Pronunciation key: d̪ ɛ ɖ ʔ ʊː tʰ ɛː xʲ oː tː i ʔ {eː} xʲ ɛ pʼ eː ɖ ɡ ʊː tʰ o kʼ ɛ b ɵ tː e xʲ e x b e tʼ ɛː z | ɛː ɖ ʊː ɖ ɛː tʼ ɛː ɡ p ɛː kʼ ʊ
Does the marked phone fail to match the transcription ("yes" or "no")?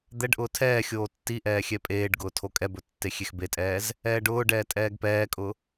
yes